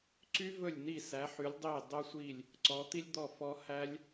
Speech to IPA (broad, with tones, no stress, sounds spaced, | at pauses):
ǀ y˥ v ɵ˥˨ lʲ n i˥˨ s æ˨˦ ħ y˨˦ lʲ dˤ i˥˨ dˤ o˥ sʷ i˥˨ lʲ | ǀ ɔ˨˦ t̪ i˥ lʲ d̪ ɔ˥˨ f ɔ˥ h æ˥ lʲ